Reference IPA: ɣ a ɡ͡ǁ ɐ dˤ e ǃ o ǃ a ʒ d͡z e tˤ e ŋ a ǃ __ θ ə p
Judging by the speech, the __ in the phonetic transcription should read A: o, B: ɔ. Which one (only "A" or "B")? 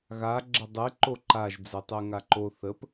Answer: A